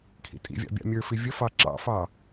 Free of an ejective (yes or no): no